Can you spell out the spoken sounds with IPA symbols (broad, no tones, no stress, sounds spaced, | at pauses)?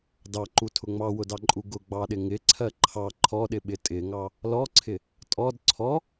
d ɑ ǃ u tʰ ʊ ŋ͡m ɑ w ʊ d ɑ ǃʼ u ɡ ʊ ɡ͡b ɑ ɗ ɪ ŋ ɪ ǀʰ ɜ ǃʰ ɑ ǃʰ ɔ ɗ ɪ ɓ ɪ tʼ ɪ ŋ ɑ | l ɔ ǀʰ ɪ | tʼ ɔ d ǀʰ ɔ